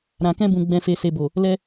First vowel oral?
no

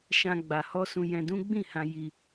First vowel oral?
no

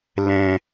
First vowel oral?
no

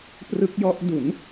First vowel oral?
yes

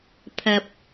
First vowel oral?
yes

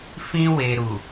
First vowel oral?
no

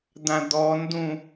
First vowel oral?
no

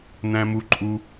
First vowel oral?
no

